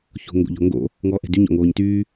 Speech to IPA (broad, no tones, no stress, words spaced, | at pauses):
ço̤ŋɡo̰ʎɔ̤ŋɡo̰ | ŋɔːʔɛ̤dy ɲɔ̰ŋoːɲtyː